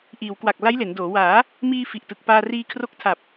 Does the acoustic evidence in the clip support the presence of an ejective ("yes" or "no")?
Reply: no